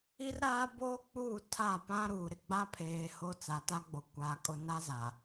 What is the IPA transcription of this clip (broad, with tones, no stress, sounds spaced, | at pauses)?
i˦ r ɾ aː˦ b oː˦ k͡p uː˦˨ tʰ a˦˨ p ã˦ ɾ uː˨ ɾ ɪ˨ ɡ͡b a˦ pʰ eː˨ h o˦ t͡s a˨ t a˦ ɡ͡b o˨ kʷ aː˨ kʼ ʊ˨ n a˦ z a˨